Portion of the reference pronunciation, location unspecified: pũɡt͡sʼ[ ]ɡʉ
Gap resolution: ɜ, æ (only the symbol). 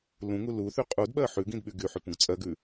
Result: ɜ